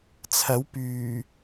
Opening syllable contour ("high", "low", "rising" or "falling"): rising